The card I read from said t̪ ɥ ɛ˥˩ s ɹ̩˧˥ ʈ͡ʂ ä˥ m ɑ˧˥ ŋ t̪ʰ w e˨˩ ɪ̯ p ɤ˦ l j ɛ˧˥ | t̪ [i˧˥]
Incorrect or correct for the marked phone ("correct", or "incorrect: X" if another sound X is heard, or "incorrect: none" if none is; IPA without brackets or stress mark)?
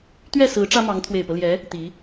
correct